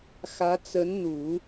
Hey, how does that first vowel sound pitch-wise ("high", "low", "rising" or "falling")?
rising